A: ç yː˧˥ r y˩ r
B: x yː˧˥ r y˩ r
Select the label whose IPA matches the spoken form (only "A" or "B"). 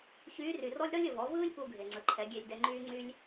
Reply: A